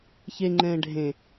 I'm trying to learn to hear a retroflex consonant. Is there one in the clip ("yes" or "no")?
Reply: yes